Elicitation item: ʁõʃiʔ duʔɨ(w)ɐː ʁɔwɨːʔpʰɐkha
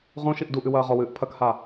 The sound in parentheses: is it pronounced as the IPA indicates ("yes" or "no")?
yes